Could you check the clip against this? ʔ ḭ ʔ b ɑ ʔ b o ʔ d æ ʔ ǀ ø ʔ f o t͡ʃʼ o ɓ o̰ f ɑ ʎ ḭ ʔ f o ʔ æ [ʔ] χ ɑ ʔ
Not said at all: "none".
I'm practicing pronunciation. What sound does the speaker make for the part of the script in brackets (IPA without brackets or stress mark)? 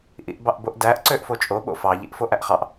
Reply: ʔ